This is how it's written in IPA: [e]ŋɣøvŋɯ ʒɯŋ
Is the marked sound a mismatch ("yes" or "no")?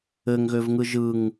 yes